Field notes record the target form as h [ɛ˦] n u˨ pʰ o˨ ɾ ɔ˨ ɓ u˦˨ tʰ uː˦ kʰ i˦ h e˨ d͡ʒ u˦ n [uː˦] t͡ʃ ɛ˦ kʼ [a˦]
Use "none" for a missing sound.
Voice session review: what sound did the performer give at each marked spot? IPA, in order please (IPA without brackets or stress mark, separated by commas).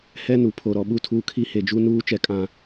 ɛ˦, uː˦, ã˦